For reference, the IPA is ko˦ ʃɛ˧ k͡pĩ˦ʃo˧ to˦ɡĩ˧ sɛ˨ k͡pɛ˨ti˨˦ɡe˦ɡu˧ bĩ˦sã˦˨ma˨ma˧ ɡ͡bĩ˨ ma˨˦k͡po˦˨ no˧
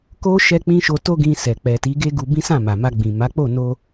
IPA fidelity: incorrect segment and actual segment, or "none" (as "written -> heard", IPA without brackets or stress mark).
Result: none